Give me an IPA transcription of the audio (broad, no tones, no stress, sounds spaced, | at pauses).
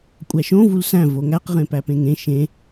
kʷʼ æ ʃ õ v u l s æ̃ v o ŋ æ q ʁ ẽ p æ p ẽ ŋ ẽ ʃ ẽ